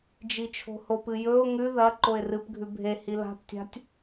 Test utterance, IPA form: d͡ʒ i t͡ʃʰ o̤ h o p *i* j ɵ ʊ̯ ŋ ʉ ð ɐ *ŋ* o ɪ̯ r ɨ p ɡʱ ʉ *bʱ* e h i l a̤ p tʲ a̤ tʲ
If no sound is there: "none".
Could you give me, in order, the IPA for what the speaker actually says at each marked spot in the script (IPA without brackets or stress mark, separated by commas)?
ɨ, ǃ, bʱ